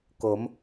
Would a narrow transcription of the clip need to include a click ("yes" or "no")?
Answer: no